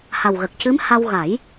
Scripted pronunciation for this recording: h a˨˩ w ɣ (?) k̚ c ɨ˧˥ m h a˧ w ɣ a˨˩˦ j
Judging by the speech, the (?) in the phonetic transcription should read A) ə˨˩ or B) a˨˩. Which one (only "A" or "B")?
A